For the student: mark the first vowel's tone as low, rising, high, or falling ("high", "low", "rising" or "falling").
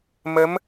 rising